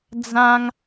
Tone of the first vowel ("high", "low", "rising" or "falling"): high